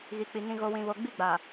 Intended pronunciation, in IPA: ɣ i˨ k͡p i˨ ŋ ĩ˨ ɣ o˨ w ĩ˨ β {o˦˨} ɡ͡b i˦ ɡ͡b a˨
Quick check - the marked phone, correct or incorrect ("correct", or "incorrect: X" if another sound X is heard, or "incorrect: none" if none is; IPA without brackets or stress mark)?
incorrect: o˨